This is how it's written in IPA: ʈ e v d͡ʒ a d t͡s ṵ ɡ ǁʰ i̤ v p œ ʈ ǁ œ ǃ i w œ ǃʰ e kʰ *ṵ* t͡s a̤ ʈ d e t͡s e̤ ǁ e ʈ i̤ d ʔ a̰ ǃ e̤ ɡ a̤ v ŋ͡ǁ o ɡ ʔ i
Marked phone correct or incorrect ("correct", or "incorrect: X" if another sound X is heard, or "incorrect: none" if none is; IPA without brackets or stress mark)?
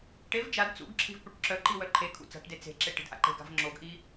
correct